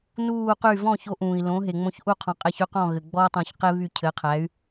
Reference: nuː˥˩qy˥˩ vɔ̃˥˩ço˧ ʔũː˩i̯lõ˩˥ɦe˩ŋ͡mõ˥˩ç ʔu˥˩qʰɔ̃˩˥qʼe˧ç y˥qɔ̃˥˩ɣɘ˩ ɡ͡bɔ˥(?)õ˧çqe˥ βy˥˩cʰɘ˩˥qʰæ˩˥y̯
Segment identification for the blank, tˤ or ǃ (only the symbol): tˤ